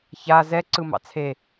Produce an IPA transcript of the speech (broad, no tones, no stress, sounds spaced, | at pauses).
ç a z ɛ ǀ ɯ m ɑ̰ t͡sʰ e